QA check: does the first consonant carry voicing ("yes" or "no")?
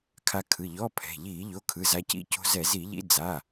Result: no